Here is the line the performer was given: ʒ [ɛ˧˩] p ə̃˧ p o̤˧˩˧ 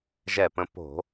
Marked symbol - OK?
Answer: yes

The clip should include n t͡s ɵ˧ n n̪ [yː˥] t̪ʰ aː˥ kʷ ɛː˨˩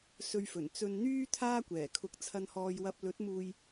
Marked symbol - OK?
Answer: yes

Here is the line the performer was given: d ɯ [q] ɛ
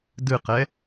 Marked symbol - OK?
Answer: yes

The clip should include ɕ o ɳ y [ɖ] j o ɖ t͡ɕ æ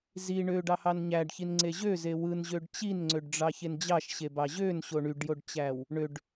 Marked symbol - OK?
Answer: yes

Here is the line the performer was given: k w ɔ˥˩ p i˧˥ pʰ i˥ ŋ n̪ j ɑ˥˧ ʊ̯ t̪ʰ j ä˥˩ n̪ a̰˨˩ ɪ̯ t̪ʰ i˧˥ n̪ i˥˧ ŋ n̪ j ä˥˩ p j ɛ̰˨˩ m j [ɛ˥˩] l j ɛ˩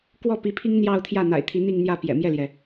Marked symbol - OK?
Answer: yes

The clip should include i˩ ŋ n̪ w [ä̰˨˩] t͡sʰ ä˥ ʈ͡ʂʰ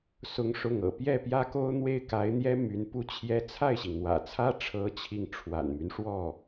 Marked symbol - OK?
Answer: yes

